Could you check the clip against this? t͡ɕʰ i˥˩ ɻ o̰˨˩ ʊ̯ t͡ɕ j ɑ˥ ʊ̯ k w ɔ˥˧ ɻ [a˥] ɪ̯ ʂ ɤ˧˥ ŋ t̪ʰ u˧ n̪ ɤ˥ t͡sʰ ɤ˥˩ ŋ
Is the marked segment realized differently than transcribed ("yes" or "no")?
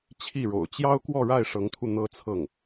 yes